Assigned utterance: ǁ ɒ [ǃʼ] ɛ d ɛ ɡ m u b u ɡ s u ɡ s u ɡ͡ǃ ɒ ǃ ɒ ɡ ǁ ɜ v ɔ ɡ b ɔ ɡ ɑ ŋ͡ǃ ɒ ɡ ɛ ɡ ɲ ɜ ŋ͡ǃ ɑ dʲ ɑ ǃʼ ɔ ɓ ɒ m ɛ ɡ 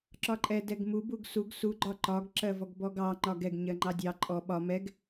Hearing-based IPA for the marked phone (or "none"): ǃʼ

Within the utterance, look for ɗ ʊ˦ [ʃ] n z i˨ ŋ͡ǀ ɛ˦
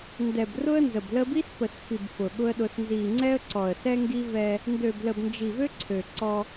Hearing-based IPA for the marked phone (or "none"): s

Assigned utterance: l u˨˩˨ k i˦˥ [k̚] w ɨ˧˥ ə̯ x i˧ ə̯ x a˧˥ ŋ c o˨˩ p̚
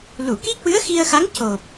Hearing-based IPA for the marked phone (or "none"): k̚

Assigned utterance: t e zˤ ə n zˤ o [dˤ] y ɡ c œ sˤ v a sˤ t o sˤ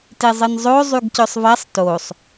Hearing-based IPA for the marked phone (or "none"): zˤ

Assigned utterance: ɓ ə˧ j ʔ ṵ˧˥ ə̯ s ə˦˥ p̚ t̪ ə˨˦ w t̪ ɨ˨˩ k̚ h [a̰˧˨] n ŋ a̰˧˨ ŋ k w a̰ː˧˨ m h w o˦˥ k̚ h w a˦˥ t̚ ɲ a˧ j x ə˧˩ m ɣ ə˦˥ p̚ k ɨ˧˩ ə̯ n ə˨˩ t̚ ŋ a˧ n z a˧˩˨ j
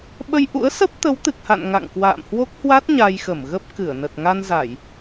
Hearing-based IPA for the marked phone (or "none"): a̰˧˨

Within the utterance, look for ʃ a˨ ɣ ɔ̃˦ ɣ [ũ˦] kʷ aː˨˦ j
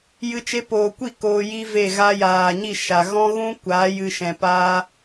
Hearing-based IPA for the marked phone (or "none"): ũ˦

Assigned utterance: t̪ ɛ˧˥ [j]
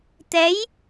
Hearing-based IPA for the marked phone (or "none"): j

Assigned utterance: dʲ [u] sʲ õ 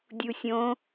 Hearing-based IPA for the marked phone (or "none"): u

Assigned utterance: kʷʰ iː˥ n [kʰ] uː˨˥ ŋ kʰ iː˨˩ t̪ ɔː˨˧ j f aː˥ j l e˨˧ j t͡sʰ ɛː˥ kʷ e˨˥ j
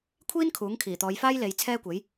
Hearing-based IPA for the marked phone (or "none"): kʰ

